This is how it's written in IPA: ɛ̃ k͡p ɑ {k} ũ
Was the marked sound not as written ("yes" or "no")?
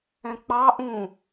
yes